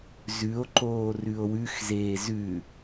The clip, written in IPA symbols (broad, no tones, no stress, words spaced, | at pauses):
zʉo̯ǃoː rʉo̯wʉxzeːz ʉ